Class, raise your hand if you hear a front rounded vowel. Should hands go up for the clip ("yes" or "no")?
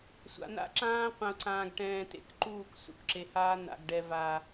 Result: no